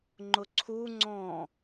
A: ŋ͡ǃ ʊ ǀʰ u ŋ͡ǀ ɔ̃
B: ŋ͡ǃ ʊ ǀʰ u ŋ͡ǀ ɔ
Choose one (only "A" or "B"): A